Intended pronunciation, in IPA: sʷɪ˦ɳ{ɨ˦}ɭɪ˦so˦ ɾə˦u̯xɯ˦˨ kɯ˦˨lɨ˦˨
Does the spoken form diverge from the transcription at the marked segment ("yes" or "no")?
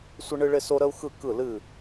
no